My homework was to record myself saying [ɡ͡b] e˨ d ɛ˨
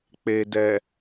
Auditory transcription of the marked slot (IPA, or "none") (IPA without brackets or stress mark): k͡p